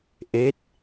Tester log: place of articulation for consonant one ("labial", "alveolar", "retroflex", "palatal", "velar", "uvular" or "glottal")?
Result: glottal